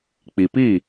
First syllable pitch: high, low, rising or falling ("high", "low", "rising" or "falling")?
low